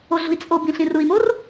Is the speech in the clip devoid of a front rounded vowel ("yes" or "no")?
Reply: yes